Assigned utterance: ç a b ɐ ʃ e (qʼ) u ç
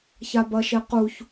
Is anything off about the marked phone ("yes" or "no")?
yes